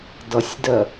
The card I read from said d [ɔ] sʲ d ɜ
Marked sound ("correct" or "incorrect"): incorrect